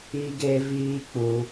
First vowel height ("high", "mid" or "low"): high